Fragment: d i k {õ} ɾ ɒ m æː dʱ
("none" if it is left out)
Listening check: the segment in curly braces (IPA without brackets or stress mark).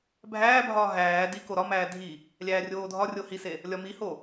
o